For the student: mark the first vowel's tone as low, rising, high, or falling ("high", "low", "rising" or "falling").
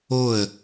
falling